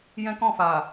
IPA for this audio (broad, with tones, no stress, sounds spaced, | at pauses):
j ɛ̃˦ k ɔ̃˦˨ f a˨